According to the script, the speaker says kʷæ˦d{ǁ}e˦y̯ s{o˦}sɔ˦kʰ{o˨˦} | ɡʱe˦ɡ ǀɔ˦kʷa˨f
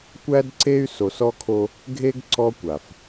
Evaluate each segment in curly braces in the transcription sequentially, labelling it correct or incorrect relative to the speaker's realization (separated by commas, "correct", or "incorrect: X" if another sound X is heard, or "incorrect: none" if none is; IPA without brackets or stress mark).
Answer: incorrect: ǀ, incorrect: o˨, incorrect: o˦